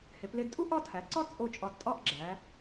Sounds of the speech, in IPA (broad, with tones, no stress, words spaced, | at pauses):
he˩˧ple˧dtʼu˥ ʔɒ˥˧tʰæ˩˧ ǀɒ˥ t͡sʼo˥˧t͡ʃʼɒ˧d tʼɒ˥˧ʔɡ͡ǁæ˩˧